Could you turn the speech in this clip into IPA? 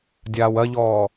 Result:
dʲ aː w ɐ ʎ ɔː

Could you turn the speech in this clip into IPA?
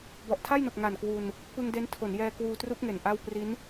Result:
b ɔ˨˩ ʔ tʰ a˥˩ j n o˨˩ k̚ ŋ a˨˩ n k w u˧ n | p ɯ˧ ŋ d e˦˥ n tʰ o˩˦ n j ɛː˧ k w uː˧ t r u˦˥ k̚ ŋ e˨˩ n ʔ a˥˩ w p r i˦˥ n

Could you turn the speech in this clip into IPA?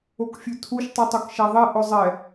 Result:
o k fʲ ʉ tʰ u ʃ tˤ u tˤ o k ʃ æ ðˤ e ʔ ɵ zˤ ɛ

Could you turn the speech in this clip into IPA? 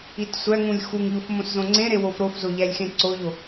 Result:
i t sʷ æ ŋ ũ lʲ x u ŋ ʎ o f m õ s z õ ŋ͡ǀ ẽ ɾ e w o f ɾ o f z o ʎ æ lʲ x ẽ ǀ o ʎ o

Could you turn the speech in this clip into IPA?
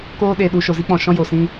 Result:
k oː˧ ɗ e˨ ɗ u˨ ʃ o˨ z i˦ k͡p ɔ̃˨ ʃ ɔ̃˦ j o˨ s ĩ˦

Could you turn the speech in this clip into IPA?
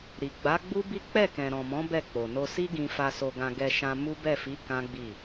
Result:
ɾ i˨ ɡ͡b a˨˦ ɡ͡b u˦ b i˦ k͡p ɛ˦˨ k ɛ̃˨ ɾ ɔ̃˨ m ɔ̃˨˦ b ɛ˦˨ k͡p o˨ n o˧ s i˦ ɡ ĩ˧ f a˧ s o˧ ɡ ã˧ ɡ ɛ˧ ʃ ã˧ m u˦ b ɛ˦˨ f i˨˦ k ã˦ ɡ͡b i˦˨

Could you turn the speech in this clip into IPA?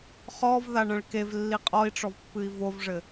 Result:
χ ɔ v ð a ɳ ɐ̃ ɭ k e v lː i qʼ ɔ i̯ ʈ͡ʂ ɔ v pː ɨ i̯ v o v ʐ ɘ

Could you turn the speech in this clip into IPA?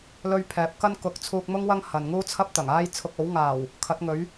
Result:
l ɵ˥ ɥ pʰ ɛː˨˥ p̚ k ɐ˥ n k ʊ˨˥ k̚ t͡sʰ uː˧ k̚ m ʊ˥ ŋ w ɐ˥ ŋ h ɐ˨ n ŋ uː˥ t͡sʰ ɐ˥ p̚ t̪ ɐ˨˩ ŋ aː˥ j t͡sʰ ʊ˧ k̚ o˨˥ w ŋ aː˨˩ w | kʰ ɐ˨˥ t̚ ŋ ɵ˨˥ ɥ

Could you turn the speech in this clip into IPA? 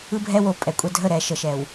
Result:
ɯ˦ bʱ ɛ˦ w o˨ pʼ ɛ˨ kʷʼ ɛ˦ dʱ ə˦˨ ɾ ɛ˨ ʃ ə˨ ʃ ɛ˨ w

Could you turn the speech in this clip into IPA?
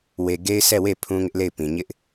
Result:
w e˨ ɡ e˦ ɪ̯ sʰ ɛ˦˨ w e˦˨ pʰ ũ˦ ŋ ɪ˦ ʔ l e˦˨ ɪ̯ p ĩ˨ ɲ ɪ˦ ʔ

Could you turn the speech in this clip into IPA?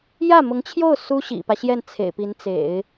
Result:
j ä˥˩ m ʊ˧˥ ŋ t͡ɕʰ j o˥˩ ʊ̯ s u˥ ɕ ḭ˨˩ p ä˦ ɕ j ɛ˥˩ n t͡sʰ ḛ˨˩ ɪ̯ p i˧˥ n t͡s ḛ˨˩˦ ɪ̯

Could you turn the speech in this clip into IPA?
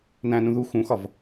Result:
n æ̃ n ũ ð u x ũ x ɒ v

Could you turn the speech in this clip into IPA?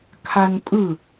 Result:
kʰ a n pʼ ɯ

